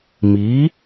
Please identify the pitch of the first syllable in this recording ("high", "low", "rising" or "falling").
rising